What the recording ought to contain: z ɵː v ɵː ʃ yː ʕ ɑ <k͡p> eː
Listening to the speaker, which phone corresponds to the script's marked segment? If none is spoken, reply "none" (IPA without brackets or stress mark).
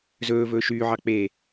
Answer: k͡p